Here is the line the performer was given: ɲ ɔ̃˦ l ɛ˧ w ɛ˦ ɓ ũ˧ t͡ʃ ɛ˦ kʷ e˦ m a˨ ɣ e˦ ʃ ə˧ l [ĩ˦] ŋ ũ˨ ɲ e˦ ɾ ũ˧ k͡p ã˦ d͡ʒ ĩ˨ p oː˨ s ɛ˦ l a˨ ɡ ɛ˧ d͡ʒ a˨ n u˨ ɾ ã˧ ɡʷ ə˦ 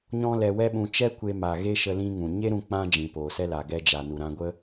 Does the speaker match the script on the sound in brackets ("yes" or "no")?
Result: yes